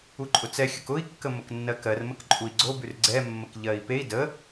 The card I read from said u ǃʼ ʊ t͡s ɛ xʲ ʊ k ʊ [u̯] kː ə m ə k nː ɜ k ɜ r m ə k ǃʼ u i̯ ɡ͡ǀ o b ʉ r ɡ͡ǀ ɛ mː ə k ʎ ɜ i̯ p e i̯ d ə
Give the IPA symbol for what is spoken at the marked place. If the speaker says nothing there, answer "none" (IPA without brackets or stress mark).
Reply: i̯